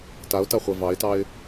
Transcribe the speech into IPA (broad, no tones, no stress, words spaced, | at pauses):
taʊ̯taχʷɛ vɑɪ̯tɑɪ̯